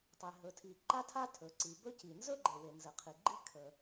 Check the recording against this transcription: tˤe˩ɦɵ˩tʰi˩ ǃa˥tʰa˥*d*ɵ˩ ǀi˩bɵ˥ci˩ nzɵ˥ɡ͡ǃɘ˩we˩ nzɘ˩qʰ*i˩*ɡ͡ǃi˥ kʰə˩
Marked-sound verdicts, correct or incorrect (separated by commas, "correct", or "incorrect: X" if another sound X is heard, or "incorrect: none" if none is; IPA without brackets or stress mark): incorrect: tʰ, correct